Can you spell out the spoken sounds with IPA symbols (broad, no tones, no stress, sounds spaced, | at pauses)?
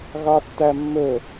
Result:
ɣ ɑ tː æ mː ɵ